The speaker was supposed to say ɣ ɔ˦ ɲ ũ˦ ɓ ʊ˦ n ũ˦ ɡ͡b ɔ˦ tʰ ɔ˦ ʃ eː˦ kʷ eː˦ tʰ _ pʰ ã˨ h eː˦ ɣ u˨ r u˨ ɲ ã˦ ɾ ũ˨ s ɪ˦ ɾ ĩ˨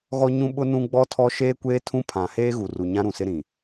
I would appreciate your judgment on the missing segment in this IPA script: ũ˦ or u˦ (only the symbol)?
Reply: ũ˦